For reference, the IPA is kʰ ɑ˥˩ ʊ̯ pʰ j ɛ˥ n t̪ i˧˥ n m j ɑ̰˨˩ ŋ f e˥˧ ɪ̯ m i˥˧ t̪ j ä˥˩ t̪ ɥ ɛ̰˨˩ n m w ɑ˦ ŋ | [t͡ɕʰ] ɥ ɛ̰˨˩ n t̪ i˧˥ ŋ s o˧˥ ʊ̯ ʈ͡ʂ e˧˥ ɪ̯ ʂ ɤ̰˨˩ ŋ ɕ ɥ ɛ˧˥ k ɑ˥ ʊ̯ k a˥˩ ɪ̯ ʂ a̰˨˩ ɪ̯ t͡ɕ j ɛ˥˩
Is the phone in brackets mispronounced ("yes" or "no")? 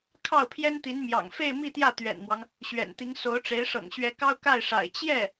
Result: yes